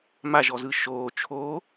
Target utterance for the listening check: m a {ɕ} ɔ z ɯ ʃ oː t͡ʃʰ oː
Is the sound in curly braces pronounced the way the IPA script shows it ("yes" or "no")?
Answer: no